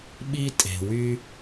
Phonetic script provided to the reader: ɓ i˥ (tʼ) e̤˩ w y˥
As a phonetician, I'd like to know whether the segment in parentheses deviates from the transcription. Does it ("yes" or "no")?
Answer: no